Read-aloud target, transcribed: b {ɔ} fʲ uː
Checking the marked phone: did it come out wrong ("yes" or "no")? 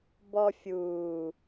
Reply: no